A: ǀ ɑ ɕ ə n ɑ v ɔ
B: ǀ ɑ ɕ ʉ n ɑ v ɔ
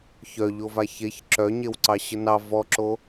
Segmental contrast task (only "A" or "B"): A